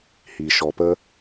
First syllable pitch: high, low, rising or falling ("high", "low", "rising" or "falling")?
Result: low